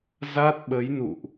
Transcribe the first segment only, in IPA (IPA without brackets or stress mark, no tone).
z